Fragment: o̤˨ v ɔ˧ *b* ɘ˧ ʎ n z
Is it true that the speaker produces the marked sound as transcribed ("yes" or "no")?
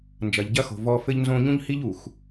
no